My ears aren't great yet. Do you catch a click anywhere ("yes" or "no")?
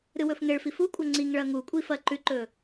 yes